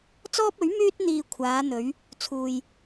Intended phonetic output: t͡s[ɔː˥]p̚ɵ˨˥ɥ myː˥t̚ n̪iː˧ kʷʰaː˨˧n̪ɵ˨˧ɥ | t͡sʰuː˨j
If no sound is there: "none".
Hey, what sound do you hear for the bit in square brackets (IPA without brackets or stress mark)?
ɔː˥